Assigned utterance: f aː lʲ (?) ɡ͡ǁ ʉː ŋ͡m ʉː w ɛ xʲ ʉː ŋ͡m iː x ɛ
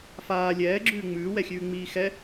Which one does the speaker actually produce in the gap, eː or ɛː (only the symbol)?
ɛː